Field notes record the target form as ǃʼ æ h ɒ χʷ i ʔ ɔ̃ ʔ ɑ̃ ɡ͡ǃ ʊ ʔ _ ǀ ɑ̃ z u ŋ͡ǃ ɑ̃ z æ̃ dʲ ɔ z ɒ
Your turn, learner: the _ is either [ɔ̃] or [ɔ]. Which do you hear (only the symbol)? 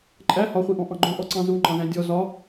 ɔ